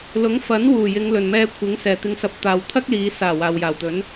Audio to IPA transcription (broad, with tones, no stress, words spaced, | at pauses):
lʊ˨˥ŋfɐ˨˥nwuː˨˩ jɪ˨˧ŋlɵ˨˩nmɛː˧kʷʰɪ˨˥ŋ sɛː˨˩t̪ɪ˧ŋsɐ˧p̚ t̪aː˨wt̪ʰɐ˥k̚liː˨˧ saː˨˩ waː˨wjaː˨˩wt̪ɵ˨˥n